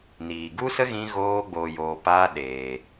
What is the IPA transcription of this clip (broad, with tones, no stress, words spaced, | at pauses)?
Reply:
niː˨ɡu˦sə˦ ɣĩ˦ɣoː˦ ɡ͡boː˧joː˧ pa˦ ɗeː˧